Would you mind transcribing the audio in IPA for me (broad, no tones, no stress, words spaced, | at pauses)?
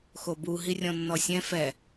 xobu ɦirʲɔ̃nːɔsʲɛ̃ fɛ